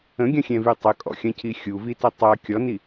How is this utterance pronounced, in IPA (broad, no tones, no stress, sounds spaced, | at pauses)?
ə̃ ɡʲ ɐ̃ xʲ ɛ̃ v y tˤ ə kʼ ɔ̰ xʲ ɐ̃ c i xʲ u v i t ɐ tˤ a kʲ ɔ n i